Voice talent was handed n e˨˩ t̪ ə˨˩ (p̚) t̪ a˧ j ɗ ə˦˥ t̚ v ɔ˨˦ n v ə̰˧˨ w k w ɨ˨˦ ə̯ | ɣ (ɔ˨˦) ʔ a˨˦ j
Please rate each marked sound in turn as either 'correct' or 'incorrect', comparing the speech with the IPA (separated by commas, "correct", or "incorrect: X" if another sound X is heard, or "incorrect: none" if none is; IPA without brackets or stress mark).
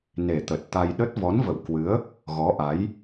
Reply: incorrect: t̚, correct